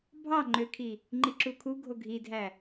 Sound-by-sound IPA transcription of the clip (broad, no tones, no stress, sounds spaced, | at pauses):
bʱ ɑ ŋ͡ǃ ø kʰ i | ŋ͡ǃ i ǁ u kʰ u ɡʱ o ɡʱ i dʱ æ